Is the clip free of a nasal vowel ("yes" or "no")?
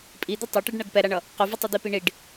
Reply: yes